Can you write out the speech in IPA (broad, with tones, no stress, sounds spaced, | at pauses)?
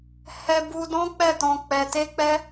h ɛ˧ b u˧ d ɔ̃˦ k͡p ɛ˦˨ t ɔ̃˧ k͡p ɛ˧ t e˦ k͡p ɛ˦